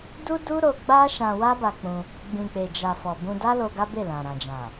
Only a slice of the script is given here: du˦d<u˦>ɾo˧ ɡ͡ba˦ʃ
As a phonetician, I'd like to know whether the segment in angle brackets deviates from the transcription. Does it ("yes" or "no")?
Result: no